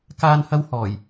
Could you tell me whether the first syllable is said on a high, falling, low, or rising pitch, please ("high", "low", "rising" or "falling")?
high